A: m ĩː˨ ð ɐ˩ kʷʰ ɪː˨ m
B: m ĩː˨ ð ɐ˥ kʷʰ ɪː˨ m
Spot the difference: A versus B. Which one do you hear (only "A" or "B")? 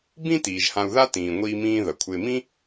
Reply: A